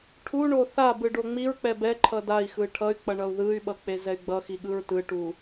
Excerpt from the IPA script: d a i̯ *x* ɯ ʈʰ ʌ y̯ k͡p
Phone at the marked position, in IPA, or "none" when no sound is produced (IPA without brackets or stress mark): x